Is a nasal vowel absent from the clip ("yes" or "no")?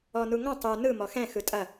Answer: no